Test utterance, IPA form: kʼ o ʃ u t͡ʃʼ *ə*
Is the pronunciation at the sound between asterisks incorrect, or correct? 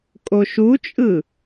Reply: incorrect